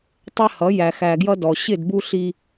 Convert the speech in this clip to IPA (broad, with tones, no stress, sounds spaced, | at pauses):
tˤ ɛ˦ h ʌ˨˦ j æ˨ x æ˨ ɡ j ʌ˦ d ɔ˨ ɕ ɪ˦˨ d b u˦ ɬ i˦